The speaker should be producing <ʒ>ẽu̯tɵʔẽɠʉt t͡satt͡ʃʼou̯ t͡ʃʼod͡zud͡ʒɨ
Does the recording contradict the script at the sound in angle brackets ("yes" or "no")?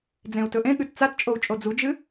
yes